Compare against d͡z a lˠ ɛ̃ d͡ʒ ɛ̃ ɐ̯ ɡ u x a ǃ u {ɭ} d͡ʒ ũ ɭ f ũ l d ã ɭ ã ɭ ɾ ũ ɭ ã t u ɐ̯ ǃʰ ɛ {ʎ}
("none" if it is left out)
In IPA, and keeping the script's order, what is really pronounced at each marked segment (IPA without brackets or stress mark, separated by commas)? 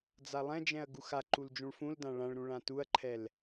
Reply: l, l